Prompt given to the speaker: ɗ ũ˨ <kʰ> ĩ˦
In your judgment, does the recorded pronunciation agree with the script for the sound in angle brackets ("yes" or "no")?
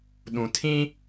no